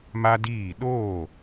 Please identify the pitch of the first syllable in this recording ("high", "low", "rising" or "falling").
high